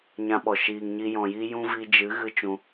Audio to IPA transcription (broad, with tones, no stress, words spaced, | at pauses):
ɲã˧ɓɔ˨ ʃiː˨ŋɲi˧ jɔ̃˨ji˧jũ˧ vi˧d͡ʒɨ˨˦ ɣɨ˦t͡ʃũ˧